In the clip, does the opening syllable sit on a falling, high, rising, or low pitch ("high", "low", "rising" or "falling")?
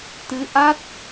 rising